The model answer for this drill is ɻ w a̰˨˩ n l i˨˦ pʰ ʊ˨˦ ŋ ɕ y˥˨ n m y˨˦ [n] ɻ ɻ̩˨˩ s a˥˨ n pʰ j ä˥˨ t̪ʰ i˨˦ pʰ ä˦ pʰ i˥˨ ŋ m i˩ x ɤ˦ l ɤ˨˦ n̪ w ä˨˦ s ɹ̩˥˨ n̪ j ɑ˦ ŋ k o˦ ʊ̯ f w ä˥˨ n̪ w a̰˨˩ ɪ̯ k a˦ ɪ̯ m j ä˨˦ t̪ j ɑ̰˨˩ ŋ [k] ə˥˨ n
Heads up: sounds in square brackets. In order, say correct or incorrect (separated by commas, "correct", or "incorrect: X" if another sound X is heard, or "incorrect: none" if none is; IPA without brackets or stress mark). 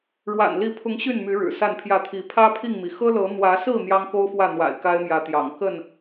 incorrect: none, correct